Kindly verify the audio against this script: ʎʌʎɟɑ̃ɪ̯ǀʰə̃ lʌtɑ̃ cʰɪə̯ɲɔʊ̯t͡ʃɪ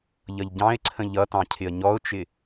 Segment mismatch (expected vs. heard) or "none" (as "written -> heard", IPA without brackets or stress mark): l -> ʎ